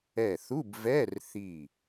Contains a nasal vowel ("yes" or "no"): no